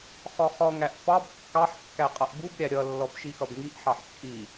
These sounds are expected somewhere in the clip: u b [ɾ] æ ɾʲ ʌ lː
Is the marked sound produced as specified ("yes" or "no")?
no